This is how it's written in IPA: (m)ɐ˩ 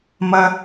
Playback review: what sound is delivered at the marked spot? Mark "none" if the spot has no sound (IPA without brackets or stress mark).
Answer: m